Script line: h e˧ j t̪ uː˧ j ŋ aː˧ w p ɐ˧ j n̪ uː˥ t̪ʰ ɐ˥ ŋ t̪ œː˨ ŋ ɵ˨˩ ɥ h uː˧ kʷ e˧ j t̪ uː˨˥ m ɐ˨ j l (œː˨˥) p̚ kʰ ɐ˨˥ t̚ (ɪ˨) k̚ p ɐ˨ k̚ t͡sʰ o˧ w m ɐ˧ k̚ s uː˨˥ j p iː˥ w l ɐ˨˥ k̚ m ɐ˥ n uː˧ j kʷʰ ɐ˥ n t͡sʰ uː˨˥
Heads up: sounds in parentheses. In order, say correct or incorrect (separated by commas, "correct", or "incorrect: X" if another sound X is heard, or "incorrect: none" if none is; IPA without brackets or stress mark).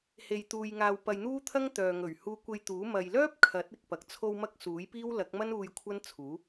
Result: incorrect: œː˥, correct